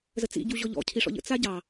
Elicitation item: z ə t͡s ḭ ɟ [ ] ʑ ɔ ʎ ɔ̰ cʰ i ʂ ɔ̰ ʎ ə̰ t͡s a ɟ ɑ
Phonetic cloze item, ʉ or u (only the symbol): u